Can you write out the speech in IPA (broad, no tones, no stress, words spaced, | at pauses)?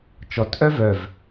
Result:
t͡ʃɔtʔœ vœv